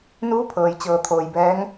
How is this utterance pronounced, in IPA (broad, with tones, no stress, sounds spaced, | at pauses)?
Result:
n uː˧˥ pʰ ɤː˩ j t͡ɕ ɤː˩ t̪ʰ oː˩ j b ɛː˧˥ ŋ